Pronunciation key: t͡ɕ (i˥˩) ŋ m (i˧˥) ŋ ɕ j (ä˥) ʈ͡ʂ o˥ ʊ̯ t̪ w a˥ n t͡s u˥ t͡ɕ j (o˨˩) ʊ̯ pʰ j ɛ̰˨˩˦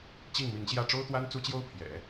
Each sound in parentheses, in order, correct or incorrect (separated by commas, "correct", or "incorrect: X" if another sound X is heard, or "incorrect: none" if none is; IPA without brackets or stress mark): correct, correct, incorrect: ä˥˩, incorrect: o˥